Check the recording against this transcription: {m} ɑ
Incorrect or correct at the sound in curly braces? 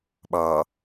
incorrect: ɓ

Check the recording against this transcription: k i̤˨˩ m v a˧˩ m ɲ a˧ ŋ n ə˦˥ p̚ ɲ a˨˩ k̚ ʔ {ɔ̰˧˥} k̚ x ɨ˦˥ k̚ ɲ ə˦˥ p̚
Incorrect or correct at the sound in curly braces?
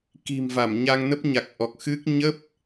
incorrect: ɔ˨˩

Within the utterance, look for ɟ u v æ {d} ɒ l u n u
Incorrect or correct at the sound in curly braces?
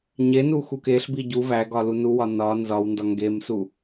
incorrect: ɡ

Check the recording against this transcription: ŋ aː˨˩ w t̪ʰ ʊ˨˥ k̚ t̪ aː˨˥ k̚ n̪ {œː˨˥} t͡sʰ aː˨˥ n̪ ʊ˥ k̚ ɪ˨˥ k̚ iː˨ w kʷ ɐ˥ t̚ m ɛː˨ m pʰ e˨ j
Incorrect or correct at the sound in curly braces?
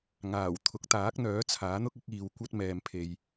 correct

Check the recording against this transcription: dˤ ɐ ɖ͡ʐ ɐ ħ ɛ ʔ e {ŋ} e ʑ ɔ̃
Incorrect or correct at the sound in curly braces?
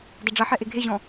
incorrect: ɡʱ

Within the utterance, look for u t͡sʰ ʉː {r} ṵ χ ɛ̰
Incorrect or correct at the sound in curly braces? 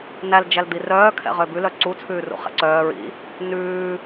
correct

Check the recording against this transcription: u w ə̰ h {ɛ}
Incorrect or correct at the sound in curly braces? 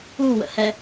correct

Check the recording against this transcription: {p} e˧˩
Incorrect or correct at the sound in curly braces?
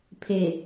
incorrect: pʰ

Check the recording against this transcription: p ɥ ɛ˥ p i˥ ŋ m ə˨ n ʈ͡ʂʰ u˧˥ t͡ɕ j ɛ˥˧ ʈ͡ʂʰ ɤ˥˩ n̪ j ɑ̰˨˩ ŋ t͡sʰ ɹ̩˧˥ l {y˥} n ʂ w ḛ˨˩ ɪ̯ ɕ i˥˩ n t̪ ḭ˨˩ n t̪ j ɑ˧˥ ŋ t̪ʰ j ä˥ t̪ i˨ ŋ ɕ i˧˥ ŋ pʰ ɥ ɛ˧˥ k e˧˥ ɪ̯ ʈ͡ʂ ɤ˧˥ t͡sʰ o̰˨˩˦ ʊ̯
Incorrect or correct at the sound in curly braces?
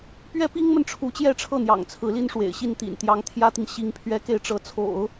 incorrect: i˥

